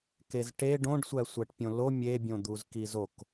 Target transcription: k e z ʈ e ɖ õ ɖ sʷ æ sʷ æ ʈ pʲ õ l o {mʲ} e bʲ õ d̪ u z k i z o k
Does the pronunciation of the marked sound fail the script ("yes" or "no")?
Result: no